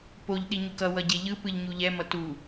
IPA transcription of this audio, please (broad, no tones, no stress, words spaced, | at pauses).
poʎ ɗiɲukʌ wʌɟeʎɯ pɯʎɲuʎɛ mʌtu